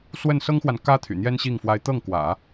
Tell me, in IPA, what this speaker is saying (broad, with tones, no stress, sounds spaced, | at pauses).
s w ə˥˩ n s ɤ˥ ŋ x w a˨ n k ä˥ t̪ʰ y̰˨˩ n̪ j ɛ˥ n ɕ i˥˩ ŋ f w a˧˥ ɪ̯ t̪ ɤ˥˩ ŋ k w ä̰˨˩˦